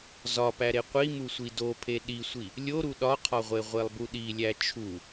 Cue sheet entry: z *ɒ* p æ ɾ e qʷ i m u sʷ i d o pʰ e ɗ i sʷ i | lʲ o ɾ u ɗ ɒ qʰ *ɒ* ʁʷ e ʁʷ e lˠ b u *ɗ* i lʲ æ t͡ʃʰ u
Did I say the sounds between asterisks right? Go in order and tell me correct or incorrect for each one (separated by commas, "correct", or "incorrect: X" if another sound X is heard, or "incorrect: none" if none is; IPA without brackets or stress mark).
correct, correct, correct